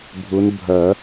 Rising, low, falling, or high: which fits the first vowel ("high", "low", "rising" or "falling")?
rising